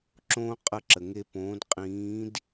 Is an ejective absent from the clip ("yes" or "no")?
no